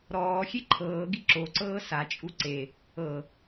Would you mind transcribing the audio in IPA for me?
ɾ ɔː xʲ e ǃʰ ɤː ɡ i ǁ o ǀ ɤː s a t͡ʃʼ u ǀ e | ɤ

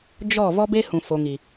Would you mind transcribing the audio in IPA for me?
d͡ʒ ɔ˦˨ v ɔ˦ b e˦ h ũ˨ f o˨ ŋ i˨

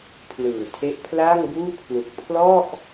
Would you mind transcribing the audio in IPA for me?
pʰ l ɯː˨˩ tʰ e˦˥ ʔ pʰ l aː˥˩ ŋ b uː˥˩ kʰ l u˨˩ k̚ pʰ l ɔ˥˩ ʔ

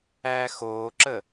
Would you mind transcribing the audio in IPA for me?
æː x oː ǁ ə

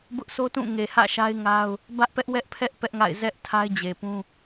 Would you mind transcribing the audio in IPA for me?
b ʊ˦ ʔ s o˦ t ũ˦˨ ŋ e˨ h ä̰˦˨ ʃ a˦ ɪ̯ ŋ a˦ ʊ̯ | b ä˦ ʔ p ɛ˦ ʔ w ɛ˦ ʔ pʰ ɛ˦ ʔ p ɛ˦ ʔ ŋ a̰˦˨ ɪ̯ z ɛ˦ ʔ tʰ a˦ ɪ̯ d͡ʑ e˨ p ũ˦

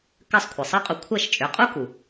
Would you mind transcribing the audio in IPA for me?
k ɜ˥˩ sˤ kʷʰ ɜ˩ sˤ ɜ˥ qʼ u˧ kʷʰ ɜ˥˩ ʃ t͡ʃʼ ʏ˩˥ qʼ u˥ k u˩

